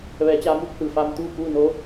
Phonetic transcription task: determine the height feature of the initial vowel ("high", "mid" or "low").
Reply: mid